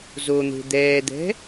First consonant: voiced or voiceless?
voiced